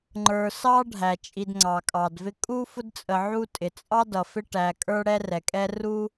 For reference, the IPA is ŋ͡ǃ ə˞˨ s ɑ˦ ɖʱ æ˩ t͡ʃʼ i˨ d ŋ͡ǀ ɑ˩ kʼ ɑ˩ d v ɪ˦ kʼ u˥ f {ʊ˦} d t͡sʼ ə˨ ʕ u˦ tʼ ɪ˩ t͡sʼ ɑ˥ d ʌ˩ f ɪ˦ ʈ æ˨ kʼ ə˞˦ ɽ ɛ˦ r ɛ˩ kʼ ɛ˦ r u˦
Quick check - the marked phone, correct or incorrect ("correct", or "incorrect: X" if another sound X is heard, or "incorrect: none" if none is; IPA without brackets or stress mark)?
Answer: correct